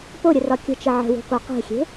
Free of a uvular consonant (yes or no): no